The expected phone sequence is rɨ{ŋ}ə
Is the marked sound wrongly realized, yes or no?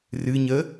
yes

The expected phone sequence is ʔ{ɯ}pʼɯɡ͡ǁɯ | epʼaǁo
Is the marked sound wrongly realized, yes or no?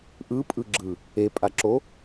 no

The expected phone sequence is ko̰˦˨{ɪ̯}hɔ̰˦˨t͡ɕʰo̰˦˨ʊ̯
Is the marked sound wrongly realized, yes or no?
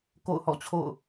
yes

